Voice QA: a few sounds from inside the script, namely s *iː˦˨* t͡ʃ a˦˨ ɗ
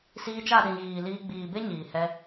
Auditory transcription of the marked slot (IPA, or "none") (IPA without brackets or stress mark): iː˧